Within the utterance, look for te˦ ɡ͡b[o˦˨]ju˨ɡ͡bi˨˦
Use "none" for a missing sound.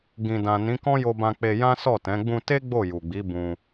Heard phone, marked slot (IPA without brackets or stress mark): o˦˨